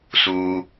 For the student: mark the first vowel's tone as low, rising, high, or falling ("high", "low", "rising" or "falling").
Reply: high